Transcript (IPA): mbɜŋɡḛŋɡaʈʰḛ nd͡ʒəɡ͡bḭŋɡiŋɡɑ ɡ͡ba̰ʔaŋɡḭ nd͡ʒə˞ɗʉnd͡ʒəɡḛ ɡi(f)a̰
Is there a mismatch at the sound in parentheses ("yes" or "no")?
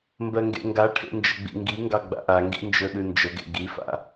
no